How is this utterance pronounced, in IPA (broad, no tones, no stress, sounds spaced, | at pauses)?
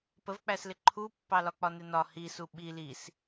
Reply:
p ə v k͡p æ s l ɪ ǃʰ u pː ɑ l ɒ k͡p ɒ n ɪ n ɒ h i s u ɓ i l i s